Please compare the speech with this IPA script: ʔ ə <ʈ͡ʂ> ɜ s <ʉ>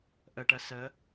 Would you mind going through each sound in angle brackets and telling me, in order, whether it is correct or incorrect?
incorrect, incorrect

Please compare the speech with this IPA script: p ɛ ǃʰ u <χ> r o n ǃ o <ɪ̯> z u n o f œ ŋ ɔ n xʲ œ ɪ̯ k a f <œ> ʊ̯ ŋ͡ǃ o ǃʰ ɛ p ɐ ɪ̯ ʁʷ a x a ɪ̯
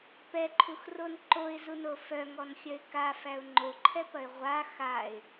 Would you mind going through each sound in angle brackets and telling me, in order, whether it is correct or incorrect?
incorrect, correct, incorrect

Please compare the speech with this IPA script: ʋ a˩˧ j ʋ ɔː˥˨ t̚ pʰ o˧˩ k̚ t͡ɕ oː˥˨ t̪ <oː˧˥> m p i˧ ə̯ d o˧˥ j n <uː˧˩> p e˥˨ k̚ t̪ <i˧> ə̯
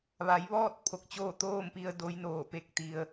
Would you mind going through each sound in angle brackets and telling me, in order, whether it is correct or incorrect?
incorrect, incorrect, correct

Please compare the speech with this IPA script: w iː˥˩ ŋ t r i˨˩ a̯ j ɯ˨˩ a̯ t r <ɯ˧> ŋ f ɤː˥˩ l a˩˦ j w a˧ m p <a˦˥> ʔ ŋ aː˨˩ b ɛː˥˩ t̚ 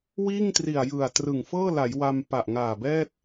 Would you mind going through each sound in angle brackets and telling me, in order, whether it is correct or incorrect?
incorrect, incorrect

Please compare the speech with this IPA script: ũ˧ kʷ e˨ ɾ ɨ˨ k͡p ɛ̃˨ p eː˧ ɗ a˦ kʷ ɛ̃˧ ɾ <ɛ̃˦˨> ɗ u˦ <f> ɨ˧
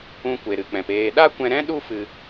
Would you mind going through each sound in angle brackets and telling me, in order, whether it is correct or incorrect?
incorrect, correct

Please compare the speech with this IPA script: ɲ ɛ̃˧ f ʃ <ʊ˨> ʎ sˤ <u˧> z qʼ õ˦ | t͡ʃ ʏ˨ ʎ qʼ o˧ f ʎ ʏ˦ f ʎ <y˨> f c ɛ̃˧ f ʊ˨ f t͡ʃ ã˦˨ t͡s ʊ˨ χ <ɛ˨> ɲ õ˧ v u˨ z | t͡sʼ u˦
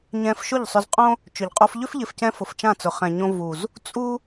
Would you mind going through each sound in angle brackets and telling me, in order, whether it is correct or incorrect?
incorrect, incorrect, incorrect, incorrect

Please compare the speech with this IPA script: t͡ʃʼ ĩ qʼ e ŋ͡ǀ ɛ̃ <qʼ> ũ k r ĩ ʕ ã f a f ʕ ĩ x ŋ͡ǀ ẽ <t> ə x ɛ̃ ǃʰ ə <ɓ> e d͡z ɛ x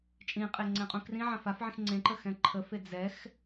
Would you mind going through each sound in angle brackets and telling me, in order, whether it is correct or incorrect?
correct, incorrect, incorrect

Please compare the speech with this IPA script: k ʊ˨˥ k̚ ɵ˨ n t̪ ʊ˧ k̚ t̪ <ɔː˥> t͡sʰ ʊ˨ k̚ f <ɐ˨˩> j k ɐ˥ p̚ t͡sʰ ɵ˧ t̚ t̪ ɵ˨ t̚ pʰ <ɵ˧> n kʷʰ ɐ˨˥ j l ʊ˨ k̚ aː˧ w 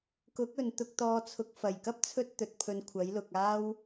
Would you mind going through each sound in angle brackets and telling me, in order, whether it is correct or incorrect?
incorrect, correct, correct

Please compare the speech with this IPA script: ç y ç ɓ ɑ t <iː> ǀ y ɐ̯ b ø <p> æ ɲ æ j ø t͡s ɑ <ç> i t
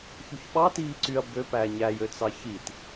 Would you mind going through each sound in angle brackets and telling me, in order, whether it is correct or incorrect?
correct, correct, correct

